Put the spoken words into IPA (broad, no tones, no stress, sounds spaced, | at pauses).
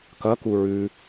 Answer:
k ɐ k u ɹ ʉ